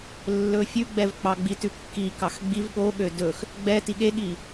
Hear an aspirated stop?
no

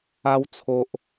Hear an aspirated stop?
yes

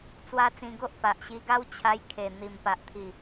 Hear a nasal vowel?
yes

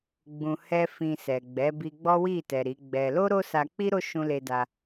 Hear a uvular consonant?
no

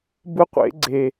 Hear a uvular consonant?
yes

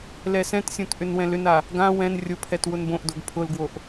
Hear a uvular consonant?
no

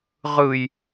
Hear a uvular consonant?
yes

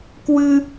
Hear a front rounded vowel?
no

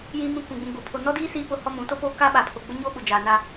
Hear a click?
no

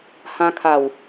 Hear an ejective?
no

